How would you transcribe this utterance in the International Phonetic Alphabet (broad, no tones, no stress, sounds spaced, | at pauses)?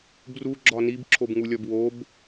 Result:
b r u ɡ͡ǁ ɒ n i b ǁʰ o b ŋ u lʲ ɒ b w o b